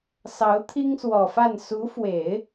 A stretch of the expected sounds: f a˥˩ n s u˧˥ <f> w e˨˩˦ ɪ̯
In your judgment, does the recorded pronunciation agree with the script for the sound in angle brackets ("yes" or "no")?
yes